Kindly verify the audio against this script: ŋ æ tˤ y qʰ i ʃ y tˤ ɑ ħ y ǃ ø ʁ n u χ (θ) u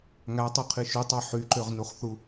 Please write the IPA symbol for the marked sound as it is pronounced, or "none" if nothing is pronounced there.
θ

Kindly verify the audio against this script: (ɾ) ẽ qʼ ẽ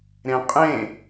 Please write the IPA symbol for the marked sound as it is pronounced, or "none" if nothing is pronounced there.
ɾ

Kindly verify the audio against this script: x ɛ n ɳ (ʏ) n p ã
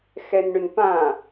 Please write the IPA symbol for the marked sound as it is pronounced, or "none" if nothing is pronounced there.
ʏ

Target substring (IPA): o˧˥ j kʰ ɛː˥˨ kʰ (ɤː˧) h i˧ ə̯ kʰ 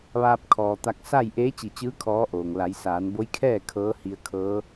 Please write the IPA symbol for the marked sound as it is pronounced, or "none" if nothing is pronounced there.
ɤː˧˥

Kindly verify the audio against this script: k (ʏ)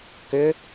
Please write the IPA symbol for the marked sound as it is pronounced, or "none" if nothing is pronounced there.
ʏ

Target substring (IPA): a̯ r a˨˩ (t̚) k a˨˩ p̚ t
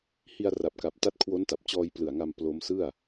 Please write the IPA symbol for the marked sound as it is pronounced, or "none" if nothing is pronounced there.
p̚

